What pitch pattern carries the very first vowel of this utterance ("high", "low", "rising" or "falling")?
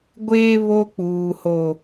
high